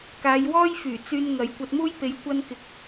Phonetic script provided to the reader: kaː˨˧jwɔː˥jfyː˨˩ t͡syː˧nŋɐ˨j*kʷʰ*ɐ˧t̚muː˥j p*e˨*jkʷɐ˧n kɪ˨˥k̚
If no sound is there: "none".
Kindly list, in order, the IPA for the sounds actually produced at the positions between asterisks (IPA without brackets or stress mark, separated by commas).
kʷ, e˨˧